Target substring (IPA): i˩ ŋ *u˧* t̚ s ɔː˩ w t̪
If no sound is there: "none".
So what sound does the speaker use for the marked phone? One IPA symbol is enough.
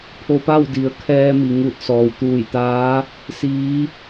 u˧˩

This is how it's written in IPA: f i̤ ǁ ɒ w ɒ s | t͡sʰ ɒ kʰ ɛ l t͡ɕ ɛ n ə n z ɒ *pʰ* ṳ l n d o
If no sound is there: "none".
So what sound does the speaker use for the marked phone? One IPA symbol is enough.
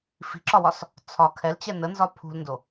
pʰ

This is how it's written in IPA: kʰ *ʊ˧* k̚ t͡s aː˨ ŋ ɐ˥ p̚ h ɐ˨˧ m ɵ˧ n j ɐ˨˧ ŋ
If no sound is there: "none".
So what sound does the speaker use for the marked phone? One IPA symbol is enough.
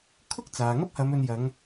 ʊ˥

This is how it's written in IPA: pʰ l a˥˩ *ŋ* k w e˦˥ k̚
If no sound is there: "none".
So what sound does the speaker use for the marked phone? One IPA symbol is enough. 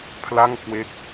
ŋ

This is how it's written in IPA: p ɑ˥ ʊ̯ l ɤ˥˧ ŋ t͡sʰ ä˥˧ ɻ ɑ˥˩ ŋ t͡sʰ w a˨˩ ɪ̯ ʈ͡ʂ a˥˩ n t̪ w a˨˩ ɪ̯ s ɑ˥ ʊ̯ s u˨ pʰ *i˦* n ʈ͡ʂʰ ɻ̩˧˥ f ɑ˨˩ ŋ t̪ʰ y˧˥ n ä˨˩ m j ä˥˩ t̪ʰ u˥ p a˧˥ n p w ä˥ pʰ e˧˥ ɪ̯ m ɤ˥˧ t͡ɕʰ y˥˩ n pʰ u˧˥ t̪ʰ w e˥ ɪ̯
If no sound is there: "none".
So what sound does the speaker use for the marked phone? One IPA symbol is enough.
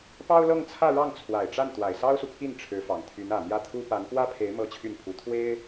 i˥˩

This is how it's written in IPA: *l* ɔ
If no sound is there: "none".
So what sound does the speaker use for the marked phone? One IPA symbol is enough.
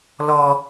l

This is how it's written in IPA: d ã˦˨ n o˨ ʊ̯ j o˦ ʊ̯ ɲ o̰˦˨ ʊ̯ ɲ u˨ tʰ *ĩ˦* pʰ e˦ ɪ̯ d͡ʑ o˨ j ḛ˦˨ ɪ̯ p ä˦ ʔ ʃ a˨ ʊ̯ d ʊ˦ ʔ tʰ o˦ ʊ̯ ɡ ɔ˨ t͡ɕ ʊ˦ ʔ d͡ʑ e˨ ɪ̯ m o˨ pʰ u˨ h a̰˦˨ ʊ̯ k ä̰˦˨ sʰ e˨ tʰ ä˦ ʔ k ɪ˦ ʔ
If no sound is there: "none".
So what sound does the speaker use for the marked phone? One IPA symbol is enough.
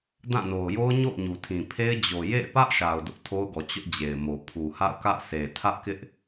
ĩ˨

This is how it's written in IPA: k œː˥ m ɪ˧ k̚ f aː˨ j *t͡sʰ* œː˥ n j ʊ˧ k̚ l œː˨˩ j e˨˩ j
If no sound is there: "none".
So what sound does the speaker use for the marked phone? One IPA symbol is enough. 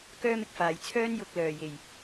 t͡sʰ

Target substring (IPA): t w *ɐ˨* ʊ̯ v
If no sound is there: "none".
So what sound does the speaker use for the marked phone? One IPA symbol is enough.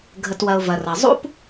ɐ˨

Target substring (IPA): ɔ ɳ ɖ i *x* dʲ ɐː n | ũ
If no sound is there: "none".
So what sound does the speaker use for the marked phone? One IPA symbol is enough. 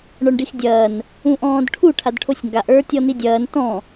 x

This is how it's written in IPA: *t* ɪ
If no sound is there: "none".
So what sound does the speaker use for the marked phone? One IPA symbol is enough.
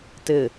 t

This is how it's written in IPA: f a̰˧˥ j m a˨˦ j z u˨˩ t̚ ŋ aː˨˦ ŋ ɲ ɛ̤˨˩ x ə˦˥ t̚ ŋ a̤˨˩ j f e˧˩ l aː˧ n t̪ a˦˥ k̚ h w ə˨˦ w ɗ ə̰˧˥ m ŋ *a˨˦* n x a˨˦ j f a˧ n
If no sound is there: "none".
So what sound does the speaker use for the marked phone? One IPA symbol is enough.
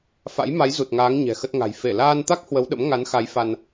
a˨˦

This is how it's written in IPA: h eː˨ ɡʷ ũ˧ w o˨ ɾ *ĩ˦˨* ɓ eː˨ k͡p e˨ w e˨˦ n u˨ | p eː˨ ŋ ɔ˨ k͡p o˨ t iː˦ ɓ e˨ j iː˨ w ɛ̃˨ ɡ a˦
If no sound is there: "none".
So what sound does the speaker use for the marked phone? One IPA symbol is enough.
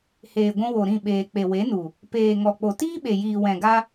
ĩ˦˨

